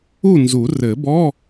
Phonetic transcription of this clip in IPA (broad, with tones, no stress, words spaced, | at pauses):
u˥˨nzu˨˩˦ rɘ˨˩˦bɔ˧˥˧